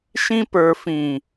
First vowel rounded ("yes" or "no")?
no